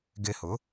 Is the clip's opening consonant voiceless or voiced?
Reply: voiced